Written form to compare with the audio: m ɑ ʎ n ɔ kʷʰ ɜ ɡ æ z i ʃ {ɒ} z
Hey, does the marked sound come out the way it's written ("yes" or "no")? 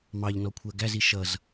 no